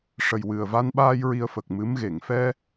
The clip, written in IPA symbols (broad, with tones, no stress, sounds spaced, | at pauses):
ʂ ə˨˩ j w ɨ˨˩ ə̯ v a˧ n ɓ aː˧ j ɹ i˧ ə̯ f ə˨˩ k̚ m ɨ˧˥ m ɣ e˨˩˨ ŋ f ɛ˧